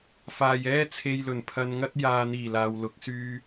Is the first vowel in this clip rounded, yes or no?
no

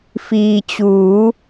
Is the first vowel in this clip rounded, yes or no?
no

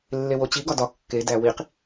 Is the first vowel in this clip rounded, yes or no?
no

